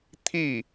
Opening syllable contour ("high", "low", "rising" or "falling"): falling